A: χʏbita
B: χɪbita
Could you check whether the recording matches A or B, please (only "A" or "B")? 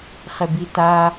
B